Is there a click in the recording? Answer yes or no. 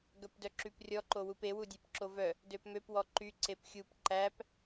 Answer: yes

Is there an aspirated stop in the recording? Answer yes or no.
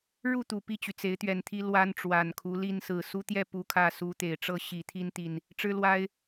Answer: yes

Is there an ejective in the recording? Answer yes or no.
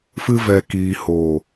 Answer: no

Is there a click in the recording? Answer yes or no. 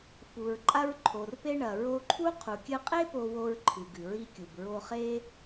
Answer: yes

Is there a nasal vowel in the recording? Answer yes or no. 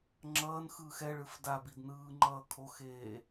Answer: no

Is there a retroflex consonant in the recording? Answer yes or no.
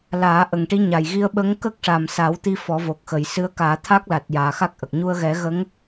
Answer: yes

